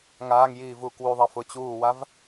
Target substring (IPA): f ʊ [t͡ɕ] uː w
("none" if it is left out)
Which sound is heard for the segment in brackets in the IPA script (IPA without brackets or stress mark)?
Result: t͡ɕ